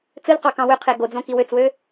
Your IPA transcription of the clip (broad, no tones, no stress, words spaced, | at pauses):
t͡sɯlqɑkɑ̃ wøqʰe ɡod͡zõki wøt͡swø